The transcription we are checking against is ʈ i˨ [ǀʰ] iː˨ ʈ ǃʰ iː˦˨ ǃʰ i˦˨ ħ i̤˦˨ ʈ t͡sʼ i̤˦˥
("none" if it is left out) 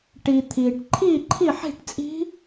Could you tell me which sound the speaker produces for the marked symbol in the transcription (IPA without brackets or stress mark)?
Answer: t̪ʰ